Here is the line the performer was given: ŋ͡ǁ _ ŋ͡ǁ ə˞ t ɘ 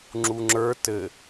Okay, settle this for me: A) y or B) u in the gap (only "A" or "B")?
B